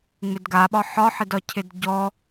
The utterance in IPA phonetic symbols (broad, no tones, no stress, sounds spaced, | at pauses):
ŋ͡m ɪ d ɡ a ɓ ɒ ħ ɒ ħ ɪ d ɒ cʰ ɪ d ɟ ɔ